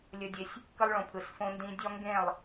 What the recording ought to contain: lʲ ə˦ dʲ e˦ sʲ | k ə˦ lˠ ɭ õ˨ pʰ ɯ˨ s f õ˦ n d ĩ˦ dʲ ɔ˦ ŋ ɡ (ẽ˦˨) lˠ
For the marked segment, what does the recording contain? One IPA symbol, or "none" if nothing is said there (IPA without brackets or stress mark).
ẽ˦˨